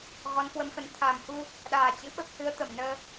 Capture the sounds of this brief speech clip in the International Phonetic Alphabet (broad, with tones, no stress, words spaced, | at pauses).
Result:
ɣɔ˨˦nkwə˨˦mfə˨˦n t̪ʰa˨˩mhu˧ | ɗaː˨˩t͡ɕɨ̰˧˥ɓə˦˥p̚ hɨ˨˦ə̯t̪ə˧˩mnəː˧